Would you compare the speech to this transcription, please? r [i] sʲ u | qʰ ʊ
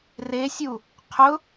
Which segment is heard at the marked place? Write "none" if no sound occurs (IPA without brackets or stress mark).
e